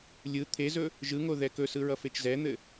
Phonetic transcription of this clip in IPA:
lʲ ɯ t̪ʰ e z ɵ | ʒ ɯ ŋ o ð ɛ k ɵ s ɯ ɹ ʌ f e t͡ʃ z ɛ n̪ ɘ

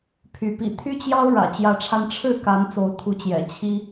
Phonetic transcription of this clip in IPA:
pʰ y˨˦ p ḭ˨˩ t̪ʰ y˦ t͡ɕ j ɑ˦ ʊ̯ ɻ ä̰˨˩ t͡ɕ j ä˨˦ ʈ͡ʂʰ a˧ n ʈ͡ʂʰ ɻ̩˥˨ k a˨˦ n t͡s o˨˦ ʊ̯ t̪ʰ u˨˦ t͡ɕ j ɛ̰˨˩ t͡ɕʰ i˦

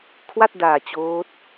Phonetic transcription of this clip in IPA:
kʰ w a˥˩ t̚ d aː˨˩ t͡ɕ oː˦˥ t̚

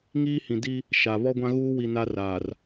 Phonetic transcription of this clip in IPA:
ŋ iː˦ h ĩ˨ d i˦ | ʃ a˨ β ɔ˦ ɡʷ ã˦ ɣ uː˦ w i˨ n a˦ r aː˨ r

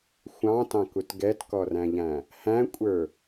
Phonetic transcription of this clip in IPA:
xʷ ɑ̃ t ɑ̃ k u t ɡ ɛ t k ɔ r æ̃ ʎ æ̃ | h æ̃ kʷʼ ə˞

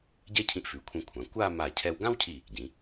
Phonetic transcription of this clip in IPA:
ɟ ɛ˥ cʰ ĩ˧ ʔ f ʉ˩˧ kʷʰ ĩ˧ kʷʰ ã˩˧ kʷ a˥˧ m a˧˩ cʰ ɛ˧ w ɡ ã˥ w cʰ i˧˩ | ɟ ĩ˩˧

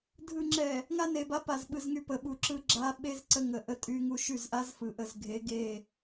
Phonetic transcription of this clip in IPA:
dʱ ɯ˨ ŋ͡ǁ ɛ˨ | ŋ a˦ n e˨ b a˦ p a˨ z ɓ ɯ˨ z ŋ y˨ p ə˨ ɓ u˨ ǁ ɯ˦ ɡ͡ǁ a˦ ɓ e˦ z ǀ ə˦ ŋ ə˨ ʔ ə˦ tʼ y˦ ŋ u˦ ʃ y˦˨ z ʔ a˦ z f ɯ˨ ʔ ə˦˨ z ɡʱ e˨˦ ɡ e˦˨

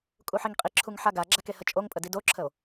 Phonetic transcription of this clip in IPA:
kʼ u ħ i ŋ qʼ i ǁʰ u ŋ ħ a ɡ a ɡ͡ǁ a k e h ə t͡ʃʼ o ŋ pʼ ə d i d o ǁʰ ə o̯

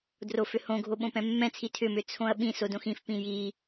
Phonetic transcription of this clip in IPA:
d r o f ʏ h õ ɡʱ o ɓ õ p ɛ̃ mː ɛ̃ t͡sʰ i tʰ ʏ m ʏ t͡sʰ õ ɐ̯ ɓ ĩ s o d õ x ĩ f p ĩ j i

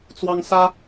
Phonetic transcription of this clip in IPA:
t͡s w ɑ˦ ŋ s ä˦

